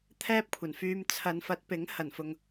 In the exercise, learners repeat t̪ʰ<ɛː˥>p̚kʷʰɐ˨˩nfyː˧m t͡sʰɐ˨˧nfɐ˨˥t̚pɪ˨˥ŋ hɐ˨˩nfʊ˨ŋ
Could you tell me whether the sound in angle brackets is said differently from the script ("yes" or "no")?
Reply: no